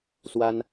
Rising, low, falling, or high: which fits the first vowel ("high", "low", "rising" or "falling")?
high